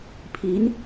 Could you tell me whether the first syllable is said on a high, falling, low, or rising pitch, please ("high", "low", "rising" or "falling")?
rising